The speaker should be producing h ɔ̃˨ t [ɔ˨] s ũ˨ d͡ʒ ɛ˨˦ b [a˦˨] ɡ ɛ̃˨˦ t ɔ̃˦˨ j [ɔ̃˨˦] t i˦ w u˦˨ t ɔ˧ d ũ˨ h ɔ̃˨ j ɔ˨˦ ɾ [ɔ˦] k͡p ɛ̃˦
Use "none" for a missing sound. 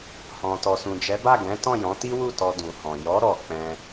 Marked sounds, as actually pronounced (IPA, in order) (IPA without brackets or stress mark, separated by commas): ɔ˨, a˦˨, ɔ̃˨˦, ɔ˧